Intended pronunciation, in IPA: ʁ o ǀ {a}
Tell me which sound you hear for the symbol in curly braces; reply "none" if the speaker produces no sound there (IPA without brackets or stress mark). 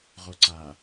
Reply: a